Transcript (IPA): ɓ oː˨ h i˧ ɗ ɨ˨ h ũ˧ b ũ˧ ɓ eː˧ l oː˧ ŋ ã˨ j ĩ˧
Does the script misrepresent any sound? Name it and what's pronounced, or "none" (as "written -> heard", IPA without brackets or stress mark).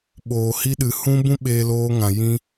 none